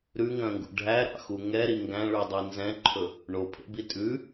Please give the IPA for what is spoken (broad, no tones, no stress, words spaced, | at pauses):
ɾʉŋœ̃ŋɡṵ ɖʱæɾɑ̰xu ŋɛɾi ŋɡæ̃ɭydˤi nzɛ̃ǃʰɵ | ɳopʰḛbi tʼʉ